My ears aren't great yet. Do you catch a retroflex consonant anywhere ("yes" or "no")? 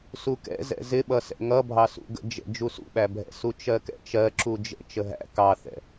no